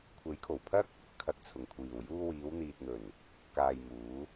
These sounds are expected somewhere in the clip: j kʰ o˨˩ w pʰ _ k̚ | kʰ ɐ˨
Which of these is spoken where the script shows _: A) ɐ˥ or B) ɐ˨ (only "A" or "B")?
A